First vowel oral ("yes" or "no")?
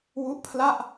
yes